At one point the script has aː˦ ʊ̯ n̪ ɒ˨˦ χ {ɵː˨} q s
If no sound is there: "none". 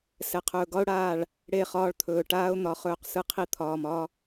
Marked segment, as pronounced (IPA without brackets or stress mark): ɵː˦˨